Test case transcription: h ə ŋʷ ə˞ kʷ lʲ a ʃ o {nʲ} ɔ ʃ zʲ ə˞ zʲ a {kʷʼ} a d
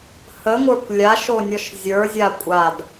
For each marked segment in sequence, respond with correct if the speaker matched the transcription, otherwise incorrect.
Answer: correct, correct

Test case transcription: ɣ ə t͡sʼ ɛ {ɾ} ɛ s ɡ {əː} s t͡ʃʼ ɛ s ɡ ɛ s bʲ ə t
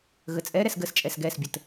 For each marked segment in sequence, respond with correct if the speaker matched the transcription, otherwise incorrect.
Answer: correct, incorrect: ə

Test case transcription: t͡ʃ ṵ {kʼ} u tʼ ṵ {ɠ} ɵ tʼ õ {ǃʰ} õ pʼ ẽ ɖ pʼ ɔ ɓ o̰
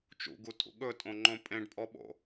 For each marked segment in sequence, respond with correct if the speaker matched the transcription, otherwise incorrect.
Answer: incorrect: ɡ, correct, incorrect: ŋ͡ǃ

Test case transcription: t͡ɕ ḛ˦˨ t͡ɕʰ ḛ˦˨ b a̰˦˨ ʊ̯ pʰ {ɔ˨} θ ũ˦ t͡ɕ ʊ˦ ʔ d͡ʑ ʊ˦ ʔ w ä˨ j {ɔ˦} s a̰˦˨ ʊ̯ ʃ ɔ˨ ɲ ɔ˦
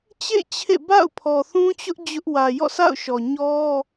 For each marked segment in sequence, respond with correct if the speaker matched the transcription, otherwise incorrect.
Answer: correct, incorrect: ɔ̰˦˨

